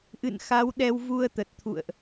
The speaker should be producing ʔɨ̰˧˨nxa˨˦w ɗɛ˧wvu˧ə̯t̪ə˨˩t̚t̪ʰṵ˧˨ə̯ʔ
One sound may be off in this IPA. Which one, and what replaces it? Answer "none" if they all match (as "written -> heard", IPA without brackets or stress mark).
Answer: none